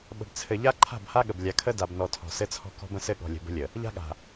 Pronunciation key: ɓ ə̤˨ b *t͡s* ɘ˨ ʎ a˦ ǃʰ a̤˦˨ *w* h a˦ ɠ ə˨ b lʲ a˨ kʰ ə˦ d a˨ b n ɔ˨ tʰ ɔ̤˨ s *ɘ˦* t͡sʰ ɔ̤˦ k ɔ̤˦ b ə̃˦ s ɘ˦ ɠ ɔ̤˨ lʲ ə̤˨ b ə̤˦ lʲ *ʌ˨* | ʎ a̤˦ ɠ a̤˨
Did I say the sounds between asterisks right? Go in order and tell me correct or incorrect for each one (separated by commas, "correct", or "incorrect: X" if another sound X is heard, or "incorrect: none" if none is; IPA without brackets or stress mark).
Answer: incorrect: t͡sʰ, incorrect: b, correct, incorrect: ə˨